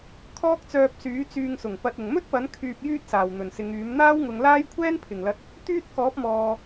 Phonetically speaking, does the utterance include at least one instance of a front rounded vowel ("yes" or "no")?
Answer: yes